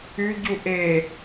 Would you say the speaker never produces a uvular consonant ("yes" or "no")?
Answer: yes